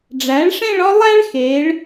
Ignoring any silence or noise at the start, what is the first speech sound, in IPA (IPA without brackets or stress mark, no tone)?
ɖ͡ʐ